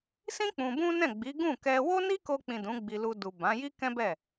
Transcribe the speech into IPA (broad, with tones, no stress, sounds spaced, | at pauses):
s ĩ˦ k͡p ũ˧ b ũ˦ n ɛ̃˦˨ ɡ͡b i˨˦ ɡ ũ˦˨ k ɛ˧ w o˦ n i˦ k o˧ k͡p ĩ˨ d ũ˨˦ ɡ͡b i˧ l u˧ d u˨ b ã˨˦ j i˦ k ɛ̃˦ b ɛ˦˨